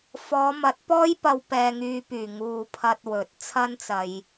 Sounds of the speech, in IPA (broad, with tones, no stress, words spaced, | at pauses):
fɔː˨˧mɐ˨˥t̚pɔː˥jpɐ˧w pɛː˧ŋyː˧pyː˨˩ ŋuː˨pʰɐ˧t̚ wɵ˨˥t̚ t͡sʰɐ˥nt͡sɐ˨j